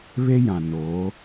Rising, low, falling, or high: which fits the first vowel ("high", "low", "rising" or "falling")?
high